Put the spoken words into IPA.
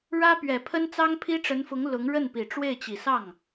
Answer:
ɻ ä˥ p ɥ ɛ˨˩ pʰ ə˥ n t͡s ɑ˥ ŋ pʰ i˥ ʈ͡ʂ ə˧˥ n f ʊ˧˥ ŋ l ʊ˧˥ ŋ ɻ ə˥˩ n p i˨˩ ʈ͡ʂ w e˥˩ ɪ̯ t͡ɕ i˨˩ s ɑ˥˩ ŋ

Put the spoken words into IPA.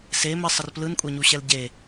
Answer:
s e m ə sˤ ə r p l ɯ n kʷʼ ɛ ɲ u ɕ ɛ l ɟ e

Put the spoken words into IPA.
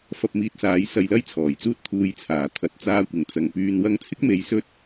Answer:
f ɐ˧ p̚ m iː˧ t̚ s aː˨˥ j s ɐ˧ j l ɐ˥ j t͡sʰ ɔː˨˩ j t͡s uː˥ t̚ t̪ʰ uː˧ j t͡sʰ aː˨˩ t̪ʰ ɐ˨˥ t̚ t͡s aː˧ kʷ ɪ˨˩ ŋ t͡s ɐ˨˩ ŋ p yː˧ n w ɐ˧ ŋ t͡sʰ ɪ˥ k̚ m e˨ j s ɵ˧ t̚

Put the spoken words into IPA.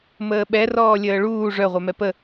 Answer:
m əː ɓ ɛ r ɔː lʲ əː ɭ uː ʐ œ ʁʷ œ m ɛ p ə

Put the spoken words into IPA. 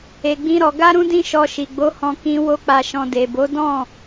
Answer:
e˨ ɡ͡b ĩ˧ ɾ ɔ˨ ɡ a˧ ɾ ũ˧ d ĩ˧ ʃ ɔ˧ ʃ i˨ ɡ͡b o˨˦ h ɔ̃˧ k ĩ˧ w o˧ k͡p a˨ ʃ ɔ̃˨ d e˨ b o˨˦ d ɔ̃˦˨

